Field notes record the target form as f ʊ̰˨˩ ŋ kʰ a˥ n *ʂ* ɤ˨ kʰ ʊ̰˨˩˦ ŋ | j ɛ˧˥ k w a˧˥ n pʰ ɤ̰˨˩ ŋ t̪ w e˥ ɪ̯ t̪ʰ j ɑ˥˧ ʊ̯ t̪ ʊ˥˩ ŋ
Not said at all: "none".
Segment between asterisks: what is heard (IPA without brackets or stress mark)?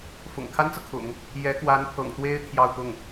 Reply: t͡s